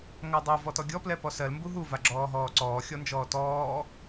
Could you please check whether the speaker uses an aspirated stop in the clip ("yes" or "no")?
no